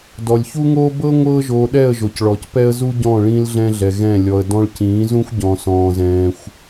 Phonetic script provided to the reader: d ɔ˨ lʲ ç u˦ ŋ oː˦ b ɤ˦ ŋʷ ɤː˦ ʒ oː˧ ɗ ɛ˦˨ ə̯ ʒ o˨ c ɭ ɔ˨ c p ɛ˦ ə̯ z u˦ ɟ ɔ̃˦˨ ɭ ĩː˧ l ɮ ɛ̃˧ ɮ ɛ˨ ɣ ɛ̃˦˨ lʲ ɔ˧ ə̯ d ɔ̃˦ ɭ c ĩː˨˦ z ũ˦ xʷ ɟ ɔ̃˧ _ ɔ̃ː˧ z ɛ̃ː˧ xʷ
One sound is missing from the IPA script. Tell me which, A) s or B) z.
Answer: A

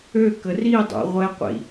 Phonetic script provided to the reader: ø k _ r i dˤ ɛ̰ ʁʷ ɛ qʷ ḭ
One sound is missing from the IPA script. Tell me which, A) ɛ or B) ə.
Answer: B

